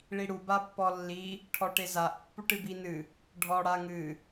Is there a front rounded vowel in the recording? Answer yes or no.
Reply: no